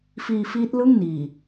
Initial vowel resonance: oral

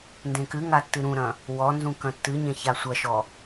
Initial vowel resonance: nasal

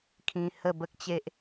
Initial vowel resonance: nasal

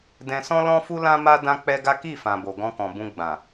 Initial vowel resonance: nasal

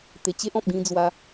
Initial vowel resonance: oral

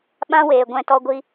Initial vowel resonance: nasal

